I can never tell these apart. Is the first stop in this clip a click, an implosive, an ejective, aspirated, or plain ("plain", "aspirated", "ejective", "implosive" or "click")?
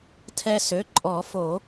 aspirated